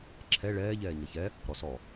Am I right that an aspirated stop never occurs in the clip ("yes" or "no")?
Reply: no